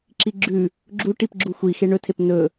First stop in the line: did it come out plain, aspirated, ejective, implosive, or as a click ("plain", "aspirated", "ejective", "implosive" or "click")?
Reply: click